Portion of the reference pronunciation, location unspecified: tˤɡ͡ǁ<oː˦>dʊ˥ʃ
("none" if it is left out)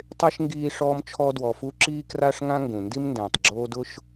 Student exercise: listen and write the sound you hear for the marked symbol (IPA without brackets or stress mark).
oː˦